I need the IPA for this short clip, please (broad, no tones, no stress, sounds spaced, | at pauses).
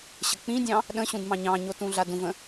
ɕ ə k͡p ĩ dʲ ɑ̃ | ɗ ə̃ ɕ ũ d m ɑ̃ ɲ ɑ̃ ɲ o t ũ ɮ a d ũ v ə̃